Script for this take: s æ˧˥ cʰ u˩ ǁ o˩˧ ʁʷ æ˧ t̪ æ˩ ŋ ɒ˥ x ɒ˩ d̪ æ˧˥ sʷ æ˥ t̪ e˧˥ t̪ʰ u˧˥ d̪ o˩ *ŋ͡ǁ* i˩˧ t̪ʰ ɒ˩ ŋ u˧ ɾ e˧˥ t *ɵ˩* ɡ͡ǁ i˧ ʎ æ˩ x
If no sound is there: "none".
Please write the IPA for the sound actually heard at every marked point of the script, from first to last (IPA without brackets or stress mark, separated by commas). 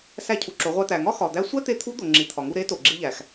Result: ŋ͡ǁ, o˩